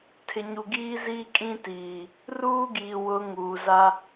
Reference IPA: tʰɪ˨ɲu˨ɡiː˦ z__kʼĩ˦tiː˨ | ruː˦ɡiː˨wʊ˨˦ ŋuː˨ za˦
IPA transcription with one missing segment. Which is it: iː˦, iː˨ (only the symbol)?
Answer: iː˦